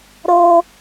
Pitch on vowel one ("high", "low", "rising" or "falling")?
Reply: high